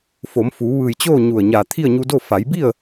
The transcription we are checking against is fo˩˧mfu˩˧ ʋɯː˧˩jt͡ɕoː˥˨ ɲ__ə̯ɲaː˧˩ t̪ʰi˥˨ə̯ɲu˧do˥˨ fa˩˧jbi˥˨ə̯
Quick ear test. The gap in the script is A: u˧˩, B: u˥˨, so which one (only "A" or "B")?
A